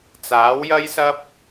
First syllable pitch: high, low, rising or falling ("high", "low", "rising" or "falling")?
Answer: rising